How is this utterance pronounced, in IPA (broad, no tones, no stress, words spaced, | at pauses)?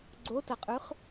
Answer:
ɡ͡ǀotɐqʼʉχ